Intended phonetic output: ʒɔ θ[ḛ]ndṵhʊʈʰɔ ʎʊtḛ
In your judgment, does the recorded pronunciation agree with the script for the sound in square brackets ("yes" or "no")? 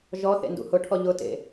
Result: yes